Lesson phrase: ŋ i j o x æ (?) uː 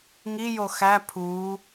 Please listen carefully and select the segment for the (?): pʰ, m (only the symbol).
pʰ